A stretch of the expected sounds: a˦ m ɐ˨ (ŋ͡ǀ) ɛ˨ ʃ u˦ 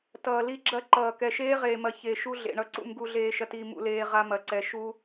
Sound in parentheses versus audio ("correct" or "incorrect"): incorrect